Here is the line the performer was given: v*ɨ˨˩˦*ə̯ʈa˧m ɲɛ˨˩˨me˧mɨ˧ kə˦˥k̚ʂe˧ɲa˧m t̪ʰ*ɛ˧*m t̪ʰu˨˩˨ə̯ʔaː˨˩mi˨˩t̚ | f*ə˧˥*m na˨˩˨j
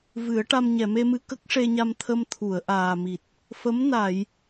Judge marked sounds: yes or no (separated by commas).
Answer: yes, no, yes